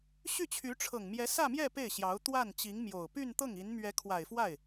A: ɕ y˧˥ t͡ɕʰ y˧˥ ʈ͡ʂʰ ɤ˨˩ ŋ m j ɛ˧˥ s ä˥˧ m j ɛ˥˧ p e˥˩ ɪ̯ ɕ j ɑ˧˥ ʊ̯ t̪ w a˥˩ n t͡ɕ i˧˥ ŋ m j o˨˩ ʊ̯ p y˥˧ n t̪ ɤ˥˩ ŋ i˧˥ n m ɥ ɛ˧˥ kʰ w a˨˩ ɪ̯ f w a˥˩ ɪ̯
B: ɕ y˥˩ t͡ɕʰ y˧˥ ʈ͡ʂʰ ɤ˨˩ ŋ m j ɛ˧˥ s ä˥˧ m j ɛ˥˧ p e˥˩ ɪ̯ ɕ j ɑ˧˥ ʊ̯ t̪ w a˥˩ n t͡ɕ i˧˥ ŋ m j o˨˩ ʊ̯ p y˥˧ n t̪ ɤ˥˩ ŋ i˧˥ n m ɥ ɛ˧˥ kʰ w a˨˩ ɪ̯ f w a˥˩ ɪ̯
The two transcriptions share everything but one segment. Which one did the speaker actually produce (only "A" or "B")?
B